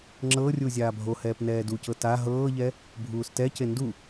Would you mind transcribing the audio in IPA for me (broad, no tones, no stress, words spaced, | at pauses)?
ŋ͡ǁɤrʲu zʲaːbʱohɛːp nɛːducɤ ta ɦɤːʎɛ | bʱuːstɛce ndu